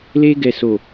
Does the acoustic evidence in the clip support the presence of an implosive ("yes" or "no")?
no